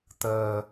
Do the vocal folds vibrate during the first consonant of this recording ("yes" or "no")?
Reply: no